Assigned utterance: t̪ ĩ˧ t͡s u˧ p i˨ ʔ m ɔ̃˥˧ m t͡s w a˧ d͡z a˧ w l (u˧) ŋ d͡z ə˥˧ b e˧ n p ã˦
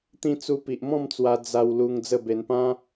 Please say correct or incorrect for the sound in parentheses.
correct